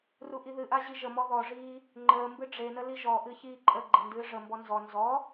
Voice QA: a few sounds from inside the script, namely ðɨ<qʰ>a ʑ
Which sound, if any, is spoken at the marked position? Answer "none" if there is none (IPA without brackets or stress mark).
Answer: ʔ